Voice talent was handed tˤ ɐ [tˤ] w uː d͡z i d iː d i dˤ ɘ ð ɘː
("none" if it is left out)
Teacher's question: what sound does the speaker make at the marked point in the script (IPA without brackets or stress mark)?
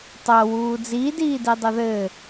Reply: none